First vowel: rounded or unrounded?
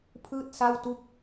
unrounded